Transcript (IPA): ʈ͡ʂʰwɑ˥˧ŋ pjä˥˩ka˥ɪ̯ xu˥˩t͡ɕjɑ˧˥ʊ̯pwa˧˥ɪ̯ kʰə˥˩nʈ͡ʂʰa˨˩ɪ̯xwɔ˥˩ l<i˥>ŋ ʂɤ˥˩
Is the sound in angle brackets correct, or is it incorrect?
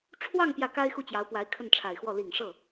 incorrect: i˨˩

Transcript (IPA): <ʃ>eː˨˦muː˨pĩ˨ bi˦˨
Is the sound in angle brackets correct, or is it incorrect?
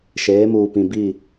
correct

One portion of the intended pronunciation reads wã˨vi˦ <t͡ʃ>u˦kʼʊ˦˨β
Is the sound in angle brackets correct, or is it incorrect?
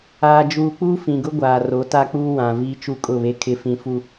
correct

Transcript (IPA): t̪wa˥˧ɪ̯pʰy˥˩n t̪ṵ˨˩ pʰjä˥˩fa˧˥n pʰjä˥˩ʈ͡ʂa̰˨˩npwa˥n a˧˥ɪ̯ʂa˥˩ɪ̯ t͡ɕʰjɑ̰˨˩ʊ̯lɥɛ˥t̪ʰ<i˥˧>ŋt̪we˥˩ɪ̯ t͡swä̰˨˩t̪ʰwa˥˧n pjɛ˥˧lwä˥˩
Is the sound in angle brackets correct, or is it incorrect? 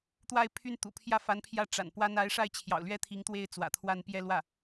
incorrect: i˧˥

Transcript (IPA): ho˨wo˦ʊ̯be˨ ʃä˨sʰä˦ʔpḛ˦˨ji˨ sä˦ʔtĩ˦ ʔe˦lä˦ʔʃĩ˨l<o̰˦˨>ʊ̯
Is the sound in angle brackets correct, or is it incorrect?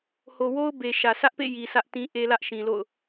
correct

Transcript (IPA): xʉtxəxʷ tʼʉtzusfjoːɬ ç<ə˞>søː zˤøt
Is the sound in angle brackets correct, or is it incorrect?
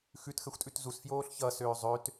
incorrect: ʌ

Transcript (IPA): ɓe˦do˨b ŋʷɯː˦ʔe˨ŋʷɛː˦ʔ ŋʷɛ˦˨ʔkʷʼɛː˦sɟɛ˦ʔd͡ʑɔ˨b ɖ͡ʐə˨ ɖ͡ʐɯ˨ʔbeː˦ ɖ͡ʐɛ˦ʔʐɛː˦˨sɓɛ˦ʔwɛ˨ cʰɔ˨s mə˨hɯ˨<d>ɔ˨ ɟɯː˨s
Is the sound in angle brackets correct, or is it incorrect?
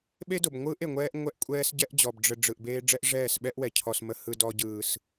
correct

